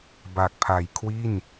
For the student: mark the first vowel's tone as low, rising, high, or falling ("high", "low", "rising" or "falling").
low